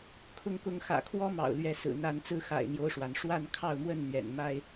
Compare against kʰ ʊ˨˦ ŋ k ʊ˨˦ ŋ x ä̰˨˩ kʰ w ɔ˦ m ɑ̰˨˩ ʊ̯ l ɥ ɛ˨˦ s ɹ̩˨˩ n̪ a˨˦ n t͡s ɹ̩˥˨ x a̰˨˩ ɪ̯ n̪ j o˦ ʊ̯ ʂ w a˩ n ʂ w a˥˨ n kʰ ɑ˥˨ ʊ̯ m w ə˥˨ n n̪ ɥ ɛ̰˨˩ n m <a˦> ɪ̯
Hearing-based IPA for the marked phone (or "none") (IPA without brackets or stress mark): a˦